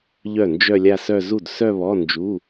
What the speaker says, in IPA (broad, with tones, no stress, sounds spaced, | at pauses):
ʎ œ˥˩ n d͡ʒ œ˥˧ lʲ a˥˧ s œ˥˧ z u˥˩ d s œ˥˧ β ɔ˧˥˧ n d͡ʒ u˧˥˧